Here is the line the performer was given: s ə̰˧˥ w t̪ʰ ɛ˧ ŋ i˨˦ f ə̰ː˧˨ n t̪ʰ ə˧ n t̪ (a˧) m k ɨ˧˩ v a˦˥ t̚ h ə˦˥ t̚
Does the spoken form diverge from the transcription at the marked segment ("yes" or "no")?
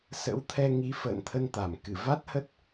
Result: yes